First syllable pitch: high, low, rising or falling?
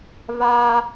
high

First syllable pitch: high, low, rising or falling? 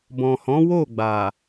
low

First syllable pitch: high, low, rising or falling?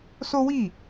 high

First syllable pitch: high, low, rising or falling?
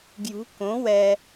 rising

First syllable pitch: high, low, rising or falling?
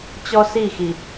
high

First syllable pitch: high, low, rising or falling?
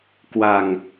low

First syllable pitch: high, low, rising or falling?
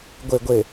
low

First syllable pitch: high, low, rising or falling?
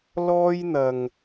high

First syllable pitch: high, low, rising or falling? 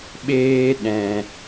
high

